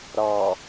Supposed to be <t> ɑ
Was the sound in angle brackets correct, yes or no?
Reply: no